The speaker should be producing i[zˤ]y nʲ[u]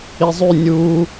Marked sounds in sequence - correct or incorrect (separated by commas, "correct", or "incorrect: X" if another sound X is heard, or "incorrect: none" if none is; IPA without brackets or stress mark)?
correct, correct